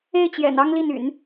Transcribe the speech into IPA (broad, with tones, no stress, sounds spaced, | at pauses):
e˥˩ ɪ̯ t͡ɕ j ɛ̰˨˩ n ɑ˥ ŋ l i˥˩ n y̰˨˩˦ n